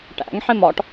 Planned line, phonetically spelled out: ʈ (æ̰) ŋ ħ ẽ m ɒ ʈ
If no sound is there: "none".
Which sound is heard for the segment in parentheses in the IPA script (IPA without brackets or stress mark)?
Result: æ̰